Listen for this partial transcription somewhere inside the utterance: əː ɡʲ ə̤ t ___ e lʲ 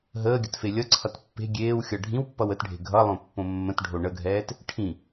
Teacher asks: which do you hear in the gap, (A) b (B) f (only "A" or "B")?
B